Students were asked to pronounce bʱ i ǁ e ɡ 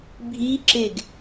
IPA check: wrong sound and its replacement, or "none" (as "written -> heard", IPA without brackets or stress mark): none